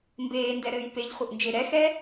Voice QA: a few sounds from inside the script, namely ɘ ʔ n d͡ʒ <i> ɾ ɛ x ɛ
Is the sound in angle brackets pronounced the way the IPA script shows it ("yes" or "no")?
no